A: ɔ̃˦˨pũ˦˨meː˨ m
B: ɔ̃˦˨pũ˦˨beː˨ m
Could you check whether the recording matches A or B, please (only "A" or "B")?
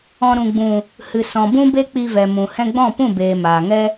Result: B